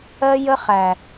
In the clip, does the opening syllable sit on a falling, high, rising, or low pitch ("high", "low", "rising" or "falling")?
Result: high